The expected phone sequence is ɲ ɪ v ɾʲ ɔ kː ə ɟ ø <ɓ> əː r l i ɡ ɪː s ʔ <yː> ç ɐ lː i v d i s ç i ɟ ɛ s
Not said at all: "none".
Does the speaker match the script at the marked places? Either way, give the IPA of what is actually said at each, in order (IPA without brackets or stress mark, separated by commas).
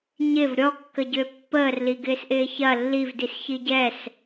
pː, ɪː